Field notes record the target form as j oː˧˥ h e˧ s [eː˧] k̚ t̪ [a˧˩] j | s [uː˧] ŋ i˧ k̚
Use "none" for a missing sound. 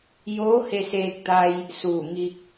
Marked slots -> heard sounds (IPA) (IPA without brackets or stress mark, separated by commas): eː˧, a˧, uː˧˩